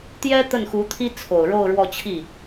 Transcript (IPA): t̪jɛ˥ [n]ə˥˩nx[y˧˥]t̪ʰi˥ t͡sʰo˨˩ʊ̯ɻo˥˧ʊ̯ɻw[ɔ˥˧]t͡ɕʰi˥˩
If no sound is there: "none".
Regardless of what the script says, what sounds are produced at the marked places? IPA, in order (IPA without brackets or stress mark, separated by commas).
t̪, u˧˥, ɔ˥˧